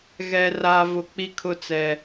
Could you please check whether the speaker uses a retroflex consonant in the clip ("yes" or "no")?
no